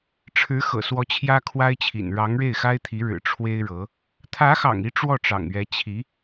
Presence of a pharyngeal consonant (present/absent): absent